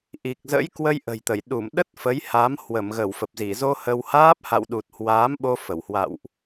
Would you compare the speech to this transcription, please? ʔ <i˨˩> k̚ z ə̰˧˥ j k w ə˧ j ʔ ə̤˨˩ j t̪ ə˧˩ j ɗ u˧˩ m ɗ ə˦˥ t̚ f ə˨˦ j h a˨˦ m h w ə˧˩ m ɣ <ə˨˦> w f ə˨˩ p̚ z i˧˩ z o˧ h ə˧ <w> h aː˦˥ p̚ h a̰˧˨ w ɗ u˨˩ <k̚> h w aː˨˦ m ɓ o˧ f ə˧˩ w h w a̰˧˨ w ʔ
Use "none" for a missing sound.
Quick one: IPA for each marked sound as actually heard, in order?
i˨˩, ə˧˩, w, t̚

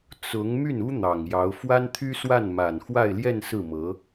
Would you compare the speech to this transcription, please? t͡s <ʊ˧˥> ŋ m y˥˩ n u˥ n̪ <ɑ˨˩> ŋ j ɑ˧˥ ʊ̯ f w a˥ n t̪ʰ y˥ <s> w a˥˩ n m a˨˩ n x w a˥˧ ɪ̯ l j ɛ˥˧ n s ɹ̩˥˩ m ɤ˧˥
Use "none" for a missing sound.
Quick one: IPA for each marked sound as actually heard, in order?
ʊ˧˥, ɑ˨˩, s

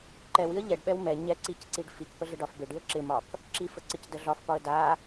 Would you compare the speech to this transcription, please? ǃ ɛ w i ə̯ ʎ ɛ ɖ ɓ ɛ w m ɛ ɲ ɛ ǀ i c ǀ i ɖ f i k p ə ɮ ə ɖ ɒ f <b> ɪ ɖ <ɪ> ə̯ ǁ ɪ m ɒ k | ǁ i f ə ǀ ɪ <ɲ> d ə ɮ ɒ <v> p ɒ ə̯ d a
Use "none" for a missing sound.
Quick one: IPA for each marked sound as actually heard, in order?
b, i, c, f

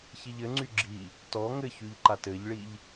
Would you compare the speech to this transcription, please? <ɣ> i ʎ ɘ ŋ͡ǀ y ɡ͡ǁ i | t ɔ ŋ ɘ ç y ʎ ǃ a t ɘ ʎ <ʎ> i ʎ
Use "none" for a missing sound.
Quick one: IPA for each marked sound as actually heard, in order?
ç, ɭ

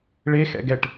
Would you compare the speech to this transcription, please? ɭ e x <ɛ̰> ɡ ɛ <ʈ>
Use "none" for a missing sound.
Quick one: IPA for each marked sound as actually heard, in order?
ɛ̰, ʈ

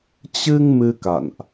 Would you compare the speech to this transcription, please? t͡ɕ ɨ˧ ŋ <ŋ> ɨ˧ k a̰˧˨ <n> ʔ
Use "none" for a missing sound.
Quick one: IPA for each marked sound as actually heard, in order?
m, n

